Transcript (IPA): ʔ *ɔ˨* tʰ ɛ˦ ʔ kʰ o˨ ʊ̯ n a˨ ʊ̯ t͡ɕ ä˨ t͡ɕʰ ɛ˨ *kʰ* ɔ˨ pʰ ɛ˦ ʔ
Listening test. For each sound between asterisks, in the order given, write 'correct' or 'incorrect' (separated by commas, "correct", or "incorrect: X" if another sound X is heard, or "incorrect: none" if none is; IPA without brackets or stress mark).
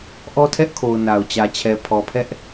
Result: incorrect: ɔ˦, incorrect: pʰ